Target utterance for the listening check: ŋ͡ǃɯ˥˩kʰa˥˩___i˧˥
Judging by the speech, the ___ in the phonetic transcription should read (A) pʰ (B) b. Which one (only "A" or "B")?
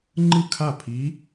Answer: A